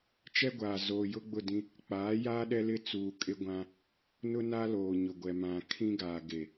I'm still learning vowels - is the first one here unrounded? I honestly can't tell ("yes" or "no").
yes